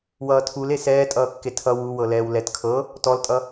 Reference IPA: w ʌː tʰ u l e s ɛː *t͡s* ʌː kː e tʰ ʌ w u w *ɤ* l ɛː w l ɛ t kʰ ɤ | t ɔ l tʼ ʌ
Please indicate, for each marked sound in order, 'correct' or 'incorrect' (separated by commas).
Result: incorrect, correct